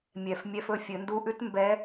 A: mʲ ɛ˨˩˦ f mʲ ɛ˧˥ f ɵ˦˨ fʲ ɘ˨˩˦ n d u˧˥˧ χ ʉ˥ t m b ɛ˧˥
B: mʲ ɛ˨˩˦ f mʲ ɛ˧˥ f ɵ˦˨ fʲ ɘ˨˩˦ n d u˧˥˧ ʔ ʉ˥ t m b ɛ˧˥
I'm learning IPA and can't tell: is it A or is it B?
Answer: B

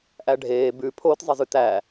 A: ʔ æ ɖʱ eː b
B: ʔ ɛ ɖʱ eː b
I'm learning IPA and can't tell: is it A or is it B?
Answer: A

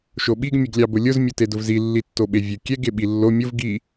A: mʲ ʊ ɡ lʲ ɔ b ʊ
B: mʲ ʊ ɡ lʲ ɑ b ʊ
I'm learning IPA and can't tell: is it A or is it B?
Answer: B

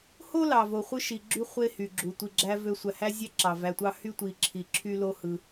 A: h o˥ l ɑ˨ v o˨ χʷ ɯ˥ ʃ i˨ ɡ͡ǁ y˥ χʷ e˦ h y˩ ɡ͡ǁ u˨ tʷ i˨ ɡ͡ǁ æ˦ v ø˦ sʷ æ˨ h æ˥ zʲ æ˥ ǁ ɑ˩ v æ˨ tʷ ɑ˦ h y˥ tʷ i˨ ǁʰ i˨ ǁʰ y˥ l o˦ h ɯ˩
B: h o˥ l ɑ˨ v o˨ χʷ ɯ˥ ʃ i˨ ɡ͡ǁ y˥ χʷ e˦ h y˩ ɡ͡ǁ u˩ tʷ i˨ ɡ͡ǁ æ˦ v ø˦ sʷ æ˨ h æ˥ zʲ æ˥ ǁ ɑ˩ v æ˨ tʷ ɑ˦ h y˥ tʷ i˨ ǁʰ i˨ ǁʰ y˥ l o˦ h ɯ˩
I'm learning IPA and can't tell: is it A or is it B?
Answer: B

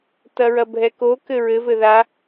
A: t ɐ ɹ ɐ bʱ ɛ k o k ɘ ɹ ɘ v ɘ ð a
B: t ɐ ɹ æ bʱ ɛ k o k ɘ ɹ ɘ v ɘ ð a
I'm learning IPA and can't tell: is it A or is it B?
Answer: A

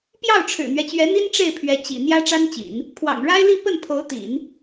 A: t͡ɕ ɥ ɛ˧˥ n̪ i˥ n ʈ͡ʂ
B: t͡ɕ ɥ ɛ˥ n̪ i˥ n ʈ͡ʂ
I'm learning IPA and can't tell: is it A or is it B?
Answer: A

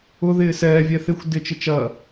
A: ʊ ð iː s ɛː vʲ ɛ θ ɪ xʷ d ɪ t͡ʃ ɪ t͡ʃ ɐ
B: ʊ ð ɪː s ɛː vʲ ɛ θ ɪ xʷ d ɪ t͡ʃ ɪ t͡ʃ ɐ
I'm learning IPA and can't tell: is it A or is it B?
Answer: B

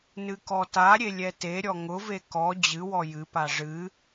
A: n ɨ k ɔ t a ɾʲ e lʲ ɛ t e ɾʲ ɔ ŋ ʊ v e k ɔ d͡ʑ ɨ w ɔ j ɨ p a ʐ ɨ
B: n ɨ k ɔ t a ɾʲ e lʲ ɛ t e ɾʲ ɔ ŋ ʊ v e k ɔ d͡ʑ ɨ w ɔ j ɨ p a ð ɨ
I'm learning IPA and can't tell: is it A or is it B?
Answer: A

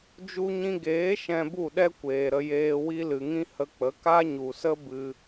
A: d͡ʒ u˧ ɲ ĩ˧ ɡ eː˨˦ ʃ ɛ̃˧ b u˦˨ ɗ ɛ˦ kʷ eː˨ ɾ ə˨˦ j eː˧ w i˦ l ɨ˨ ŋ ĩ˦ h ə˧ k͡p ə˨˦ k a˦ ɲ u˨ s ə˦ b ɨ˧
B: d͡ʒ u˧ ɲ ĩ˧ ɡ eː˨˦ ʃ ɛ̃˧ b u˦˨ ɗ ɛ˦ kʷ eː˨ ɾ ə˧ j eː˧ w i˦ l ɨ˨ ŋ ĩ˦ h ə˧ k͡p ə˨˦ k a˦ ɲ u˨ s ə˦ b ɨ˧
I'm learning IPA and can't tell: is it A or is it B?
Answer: B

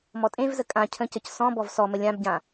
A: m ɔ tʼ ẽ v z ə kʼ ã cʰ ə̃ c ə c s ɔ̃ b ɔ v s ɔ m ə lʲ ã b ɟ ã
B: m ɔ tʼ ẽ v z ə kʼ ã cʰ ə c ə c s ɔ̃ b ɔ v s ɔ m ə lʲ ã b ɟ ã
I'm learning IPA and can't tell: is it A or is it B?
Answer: A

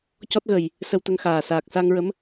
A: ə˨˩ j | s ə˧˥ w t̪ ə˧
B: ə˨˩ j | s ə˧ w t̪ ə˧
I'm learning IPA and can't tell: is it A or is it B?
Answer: B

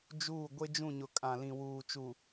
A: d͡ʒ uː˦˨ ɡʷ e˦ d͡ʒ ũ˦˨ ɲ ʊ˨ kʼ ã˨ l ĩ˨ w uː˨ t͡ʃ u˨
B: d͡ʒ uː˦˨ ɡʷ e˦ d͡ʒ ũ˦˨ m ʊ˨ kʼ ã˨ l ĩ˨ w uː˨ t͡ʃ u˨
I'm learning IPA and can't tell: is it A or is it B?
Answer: A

